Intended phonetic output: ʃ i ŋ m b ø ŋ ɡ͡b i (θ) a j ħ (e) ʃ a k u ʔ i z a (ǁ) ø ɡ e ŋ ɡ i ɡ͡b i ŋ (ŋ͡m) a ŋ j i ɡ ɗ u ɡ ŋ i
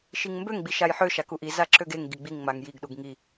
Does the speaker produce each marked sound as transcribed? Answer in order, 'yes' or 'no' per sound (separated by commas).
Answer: no, no, yes, yes